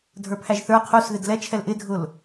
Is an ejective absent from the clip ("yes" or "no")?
yes